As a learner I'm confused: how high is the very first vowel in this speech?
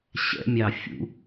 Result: mid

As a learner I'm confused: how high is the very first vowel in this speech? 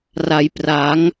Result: low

